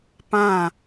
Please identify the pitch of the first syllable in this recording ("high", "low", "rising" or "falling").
falling